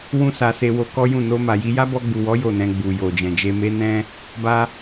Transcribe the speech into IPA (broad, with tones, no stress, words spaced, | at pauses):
wũ˦sa˧se˧ wo˧kɔ˦jũ˦˨ no˧ma˨ji˧ ja˦bɔ˧ɡ͡bu˨wɔ˨˦ jo˦˨nɛ̃˧ ɡ͡bu˨jo˨d͡ʒɛ̃˨d͡ʒe˧ me˧nɛ̃˧ | ba˦